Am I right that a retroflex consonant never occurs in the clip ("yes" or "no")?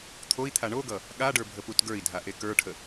no